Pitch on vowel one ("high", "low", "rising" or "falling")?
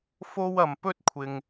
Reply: high